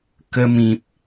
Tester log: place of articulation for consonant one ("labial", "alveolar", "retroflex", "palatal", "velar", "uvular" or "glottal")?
velar